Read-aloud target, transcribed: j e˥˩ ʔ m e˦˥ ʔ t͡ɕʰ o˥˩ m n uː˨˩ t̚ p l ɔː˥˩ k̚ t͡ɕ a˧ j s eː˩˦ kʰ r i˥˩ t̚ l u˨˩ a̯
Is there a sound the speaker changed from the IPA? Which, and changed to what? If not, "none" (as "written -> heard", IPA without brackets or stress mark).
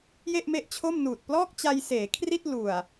none